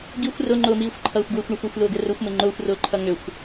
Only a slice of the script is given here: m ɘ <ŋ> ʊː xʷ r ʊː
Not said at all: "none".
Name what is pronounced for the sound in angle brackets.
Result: ŋ͡ǃ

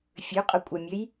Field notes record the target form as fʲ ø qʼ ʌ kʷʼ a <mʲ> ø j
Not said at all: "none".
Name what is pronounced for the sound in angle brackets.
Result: mʲ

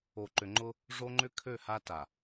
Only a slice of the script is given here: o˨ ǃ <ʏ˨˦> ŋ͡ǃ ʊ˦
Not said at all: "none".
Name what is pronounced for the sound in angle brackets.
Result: ʏ˨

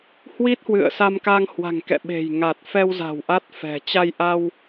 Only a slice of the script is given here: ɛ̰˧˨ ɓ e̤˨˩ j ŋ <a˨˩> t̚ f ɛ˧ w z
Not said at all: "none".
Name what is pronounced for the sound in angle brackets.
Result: a˨˩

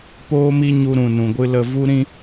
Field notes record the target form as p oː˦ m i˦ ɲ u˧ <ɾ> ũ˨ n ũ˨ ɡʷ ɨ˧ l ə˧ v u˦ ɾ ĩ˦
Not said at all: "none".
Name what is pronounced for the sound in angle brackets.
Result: ɾ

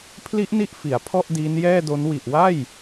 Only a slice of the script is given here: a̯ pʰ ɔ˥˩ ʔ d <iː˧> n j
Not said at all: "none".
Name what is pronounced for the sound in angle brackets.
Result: iː˦˥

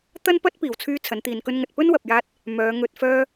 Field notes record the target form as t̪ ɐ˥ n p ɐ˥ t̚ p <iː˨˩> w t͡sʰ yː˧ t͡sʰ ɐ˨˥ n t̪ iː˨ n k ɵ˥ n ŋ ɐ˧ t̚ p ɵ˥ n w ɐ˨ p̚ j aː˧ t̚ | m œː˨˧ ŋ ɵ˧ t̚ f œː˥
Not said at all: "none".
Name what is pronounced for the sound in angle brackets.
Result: iː˨˩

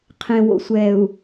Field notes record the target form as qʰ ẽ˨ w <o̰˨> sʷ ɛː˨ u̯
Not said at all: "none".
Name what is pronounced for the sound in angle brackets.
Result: o̰˨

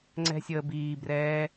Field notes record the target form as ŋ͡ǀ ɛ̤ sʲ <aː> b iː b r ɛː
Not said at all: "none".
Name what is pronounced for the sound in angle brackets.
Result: əː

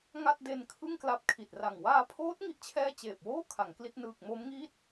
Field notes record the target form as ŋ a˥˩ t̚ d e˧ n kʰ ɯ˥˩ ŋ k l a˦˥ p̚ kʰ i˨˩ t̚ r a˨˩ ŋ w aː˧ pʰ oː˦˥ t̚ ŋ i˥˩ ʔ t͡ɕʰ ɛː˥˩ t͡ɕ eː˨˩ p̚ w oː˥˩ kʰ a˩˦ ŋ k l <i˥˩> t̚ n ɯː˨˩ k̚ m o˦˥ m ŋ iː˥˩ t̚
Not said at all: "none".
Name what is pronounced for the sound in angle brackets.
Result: i˥˩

